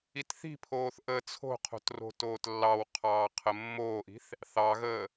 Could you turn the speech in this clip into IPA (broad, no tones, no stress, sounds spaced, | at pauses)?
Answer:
i t θ i̤ pʰ oː θ ʔ əː t͡sʰ o̤ qʰ o̤ t r o̤ t oː t lː ɑ w qʰ ɑː qʰ ə mː oː ʔ i̤ θ | θ ɑ ɣ əː